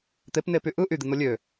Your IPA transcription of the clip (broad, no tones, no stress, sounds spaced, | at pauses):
t̪ e p n e p y ʔ ɯ ʔ y d̪ i n̪ o lʲ ø